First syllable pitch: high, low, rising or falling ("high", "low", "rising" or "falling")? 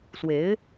rising